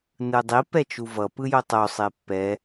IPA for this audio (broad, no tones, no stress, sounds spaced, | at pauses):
n ɯ dˤ i p ɛ t͡ʃ u v ʌ p ɯ j o tˤ o sˤ e pː ɛ